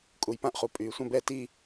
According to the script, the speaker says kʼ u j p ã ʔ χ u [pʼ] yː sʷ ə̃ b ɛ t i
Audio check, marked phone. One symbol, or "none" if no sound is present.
pʼ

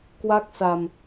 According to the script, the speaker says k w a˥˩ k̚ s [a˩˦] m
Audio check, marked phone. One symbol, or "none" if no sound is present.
a˧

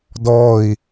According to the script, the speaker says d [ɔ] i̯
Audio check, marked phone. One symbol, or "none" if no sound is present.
ɔ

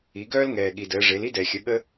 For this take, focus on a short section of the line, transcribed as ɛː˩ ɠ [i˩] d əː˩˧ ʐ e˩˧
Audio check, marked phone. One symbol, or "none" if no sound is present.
i˩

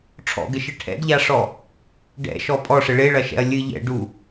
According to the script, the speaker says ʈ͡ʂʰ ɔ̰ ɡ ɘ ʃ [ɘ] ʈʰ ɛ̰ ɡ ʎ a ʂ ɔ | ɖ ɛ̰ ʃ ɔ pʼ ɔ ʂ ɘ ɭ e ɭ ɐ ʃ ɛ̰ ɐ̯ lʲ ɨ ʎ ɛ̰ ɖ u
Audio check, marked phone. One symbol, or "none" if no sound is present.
ɘ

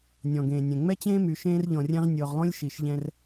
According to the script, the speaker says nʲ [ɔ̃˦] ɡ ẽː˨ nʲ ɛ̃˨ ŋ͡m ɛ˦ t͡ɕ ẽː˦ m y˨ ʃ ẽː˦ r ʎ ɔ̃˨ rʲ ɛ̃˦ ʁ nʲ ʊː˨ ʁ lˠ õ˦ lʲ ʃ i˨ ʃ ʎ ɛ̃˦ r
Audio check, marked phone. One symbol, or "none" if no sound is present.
ɔ̃˨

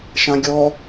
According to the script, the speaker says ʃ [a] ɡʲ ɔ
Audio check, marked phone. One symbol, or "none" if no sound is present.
ã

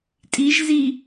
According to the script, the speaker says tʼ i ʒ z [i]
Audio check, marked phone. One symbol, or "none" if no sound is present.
i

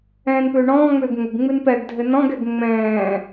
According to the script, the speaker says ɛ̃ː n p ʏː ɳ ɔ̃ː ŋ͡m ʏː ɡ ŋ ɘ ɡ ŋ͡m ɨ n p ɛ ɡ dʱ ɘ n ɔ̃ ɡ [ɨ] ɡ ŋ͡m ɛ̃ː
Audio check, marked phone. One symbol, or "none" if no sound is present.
ɛ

